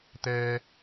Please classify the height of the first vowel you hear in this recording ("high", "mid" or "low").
mid